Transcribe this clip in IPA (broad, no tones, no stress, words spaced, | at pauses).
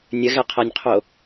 nʲəɣɛqʰænʲqʰo